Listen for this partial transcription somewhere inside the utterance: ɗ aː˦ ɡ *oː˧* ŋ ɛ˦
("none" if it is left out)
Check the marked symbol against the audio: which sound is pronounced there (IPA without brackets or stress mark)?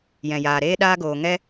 oː˧